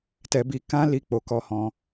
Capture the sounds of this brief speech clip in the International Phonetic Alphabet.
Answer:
tɛ˧bi˧ kã˦ li˦k͡po˧kɔ˦ hɔ̃˧

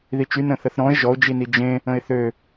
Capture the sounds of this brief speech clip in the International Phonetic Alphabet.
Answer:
ðit͡ʃy nə̃θəθɾɔ̃ɪ̯ ʒɔʊ̯d͡ʒini d͡ʒẽ | ə̃ɪ̯θø

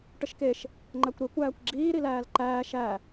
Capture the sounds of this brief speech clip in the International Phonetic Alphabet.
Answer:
ʈəʃkeʃ | ŋ͡ǃækʷɾe kʷæːkʷɡ͡ǁiː ɾilæːlǃæː ʃæ

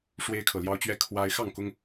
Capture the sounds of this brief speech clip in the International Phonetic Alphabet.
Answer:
ʂwe˦ɪ̯kʰɤ˨ljɑ˦ʊ̯t͡ɕɥɛ˥˨ kʰwa˦ɪ̯ xɑ˥˨ŋkʊ˦ŋ

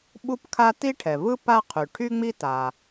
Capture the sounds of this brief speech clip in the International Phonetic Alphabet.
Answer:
ɓu˥pkʰa˥ ti˥ʈʰɛ˩vɯ˥ pa˥qʰy˩ ʈʰy˥ŋ͡mi˥ ta˩

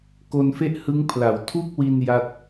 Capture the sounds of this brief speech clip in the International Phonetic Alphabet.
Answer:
ko˧nfe˥˩ʔ hɯ˦˥ŋpʰla˩˦w tʰu˥˩k̚wi˧n ja˥˩t̚

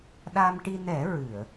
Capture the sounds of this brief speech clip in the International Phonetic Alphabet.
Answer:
ɗa˧mʈi˧ nɛ˨˩˦ ɹɨ˨˩˨ə̯

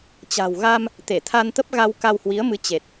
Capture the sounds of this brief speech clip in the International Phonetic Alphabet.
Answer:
t͡ɕa̤˨˩wɣa˧m | t̪e˧˩t̪ʰa˧nt̪ə˦˥p̚ɣa˧w ka˧whwi˨˦ə̯mɨ˨˦ t͡ɕe˨˩t̚

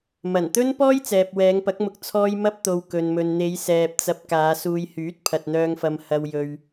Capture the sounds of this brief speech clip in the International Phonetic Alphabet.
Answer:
mɐ˨˩nt̪ɵ˥n pɔː˥jt͡sɛː˨p̚ wɛː˨˧ŋpɐ˨˥k̚mʊ˧k̚ t͡sʰɔː˧j mɐ˥p̚t̪o˧wkɵ˧nmɵ˧n n̪e˨˧jsɛː˨p̚t͡sɐ˧p̚ kaː˨˧suː˧jhyː˨˥t̚ pʰɐ˨t̚n̪œː˧ŋfɐ˧m hɐ˧wjɵ˧ɥ

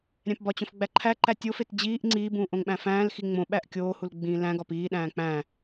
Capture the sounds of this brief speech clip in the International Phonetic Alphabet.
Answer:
ɾʲæ̃pbɒt͡ɕõf ɡ͡bæǃʰæǃæ tʲofet d͡ʑiːʔ ŋ͡ǀiːbũː ʔõŋɓæ̃fæ̃ːlxi ŋ͡mõɓæʔ kʲoːhul ɡ͡bĩːlæ̃ɡɒp iːɗæ̃ː k͡pæ̃

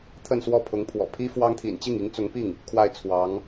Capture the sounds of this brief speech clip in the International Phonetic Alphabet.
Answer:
t̪ʰə˥˧nswɔ˥˩pʰʊ˧˥ŋpʰwɔ̰˨˩ pʰi˥fwɑ˥ŋt̪ʰḭ˨˩n t͡ɕi˥˩ŋi˧˥ŋt͡sʊ˧˥ŋpi˥˩ŋ | kʰwa˥˩ɪ̯t͡sʰwɑ˧˥ŋ

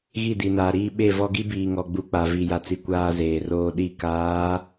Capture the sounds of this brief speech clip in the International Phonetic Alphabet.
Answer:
ɣi˦˨di˨naː˨ɾiː˦ ɓe˦˨vɔ˦ ɡi˦biː˨ŋɔ˨ɡ͡bu˨ k͡pa˨ vi˨ja˨t͡si˨ kʷaː˦zeː˨roː˦ɗi˦˨ kaː˨˦

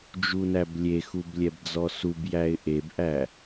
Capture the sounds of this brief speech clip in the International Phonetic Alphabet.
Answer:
d͡ʒunæblʲexub lʲɛbd͡zɔsubjæɪ̯ ʔebʔæ

